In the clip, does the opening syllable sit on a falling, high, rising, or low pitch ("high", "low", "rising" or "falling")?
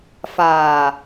low